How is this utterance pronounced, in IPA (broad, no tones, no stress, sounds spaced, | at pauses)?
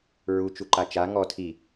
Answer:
ɹ u t͡ʃ u ǃ a t͡ʃ a ŋ ɔ tʰ i